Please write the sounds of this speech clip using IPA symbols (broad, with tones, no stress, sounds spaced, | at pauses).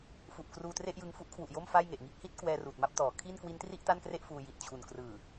f u˨˩ ʔ k r uː˧ t r e˥˩ ʔ j ɯ˧ ŋ f u˦˥ ʔ kʰ w u˨˩ ʔ j o˥˩ m f a˥˩ j ŋ e˨˩ ʔ ŋ iː˥˩ k̚ h i˥˩ t̚ k w ɛː˧ r uː˨˩ t̚ m a˥˩ p̚ t ɔː˩˦ kʰ i˥˩ n k w i˦˥ n t r i˥˩ ʔ t a˥˩ n k r e˥˩ ʔ f uː˧ j i˨˩ t̚ t͡ɕʰ u˨˩ n k r ɯː˨˩